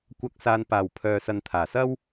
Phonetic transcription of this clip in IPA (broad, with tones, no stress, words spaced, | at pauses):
kʷɐ˨˥k̚saː˨npaː˨˩wpʰœː˨ sɐ˨nt̪ʰaː˨˩sɐ˥w